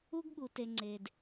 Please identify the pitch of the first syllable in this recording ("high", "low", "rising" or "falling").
high